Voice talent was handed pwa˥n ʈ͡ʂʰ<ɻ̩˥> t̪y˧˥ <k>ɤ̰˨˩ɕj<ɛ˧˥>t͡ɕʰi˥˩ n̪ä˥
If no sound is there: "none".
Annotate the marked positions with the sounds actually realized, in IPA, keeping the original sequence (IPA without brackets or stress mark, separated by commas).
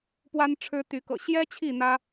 ɻ̩˥, k, ɛ˥